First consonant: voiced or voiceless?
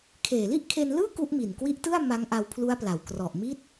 voiceless